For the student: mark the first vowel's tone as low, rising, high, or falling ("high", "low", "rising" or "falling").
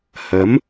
rising